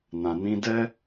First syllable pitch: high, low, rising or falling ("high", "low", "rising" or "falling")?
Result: low